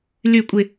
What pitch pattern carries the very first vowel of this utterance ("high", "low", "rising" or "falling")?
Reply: falling